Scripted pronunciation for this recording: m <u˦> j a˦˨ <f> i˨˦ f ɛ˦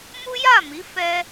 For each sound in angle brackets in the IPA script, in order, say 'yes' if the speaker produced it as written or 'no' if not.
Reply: yes, no

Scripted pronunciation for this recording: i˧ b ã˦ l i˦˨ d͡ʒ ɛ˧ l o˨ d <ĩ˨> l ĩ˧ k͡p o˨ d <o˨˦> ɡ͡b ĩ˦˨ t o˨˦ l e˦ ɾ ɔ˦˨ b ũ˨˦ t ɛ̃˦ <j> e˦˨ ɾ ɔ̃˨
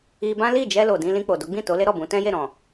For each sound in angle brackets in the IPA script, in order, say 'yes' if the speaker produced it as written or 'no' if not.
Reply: no, yes, yes

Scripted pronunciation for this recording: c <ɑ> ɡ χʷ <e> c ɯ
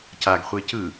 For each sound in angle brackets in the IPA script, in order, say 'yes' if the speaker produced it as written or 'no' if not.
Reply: no, yes

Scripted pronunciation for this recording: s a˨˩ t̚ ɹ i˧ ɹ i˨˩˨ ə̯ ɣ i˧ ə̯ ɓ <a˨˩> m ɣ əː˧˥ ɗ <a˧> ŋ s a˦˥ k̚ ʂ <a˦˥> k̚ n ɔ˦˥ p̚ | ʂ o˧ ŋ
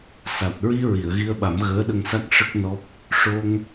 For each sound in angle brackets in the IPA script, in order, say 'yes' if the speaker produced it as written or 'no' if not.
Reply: no, no, no

